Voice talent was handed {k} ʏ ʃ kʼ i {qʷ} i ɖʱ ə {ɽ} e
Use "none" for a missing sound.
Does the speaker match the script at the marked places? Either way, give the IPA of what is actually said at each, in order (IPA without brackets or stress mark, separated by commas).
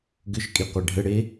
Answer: ɡ, qʷ, ɽ